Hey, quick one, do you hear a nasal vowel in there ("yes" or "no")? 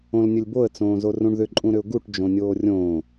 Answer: yes